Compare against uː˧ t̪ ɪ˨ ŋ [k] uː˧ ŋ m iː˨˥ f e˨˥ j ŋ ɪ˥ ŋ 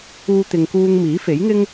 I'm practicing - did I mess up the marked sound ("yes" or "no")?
no